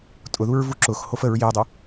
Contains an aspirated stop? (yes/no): no